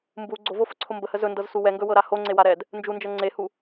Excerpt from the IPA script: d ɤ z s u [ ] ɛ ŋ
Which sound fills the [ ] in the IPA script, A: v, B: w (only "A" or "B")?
B